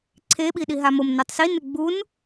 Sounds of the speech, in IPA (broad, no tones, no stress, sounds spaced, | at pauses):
ǀʰ e ɓ i ɗ i ɦ a m o m n u tˤ s i n ɪ ɡ͡b u n